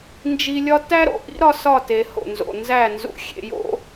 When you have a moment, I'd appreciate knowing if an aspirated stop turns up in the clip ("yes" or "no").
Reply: no